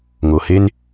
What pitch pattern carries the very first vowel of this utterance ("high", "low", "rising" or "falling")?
low